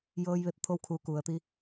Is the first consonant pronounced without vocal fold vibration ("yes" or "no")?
no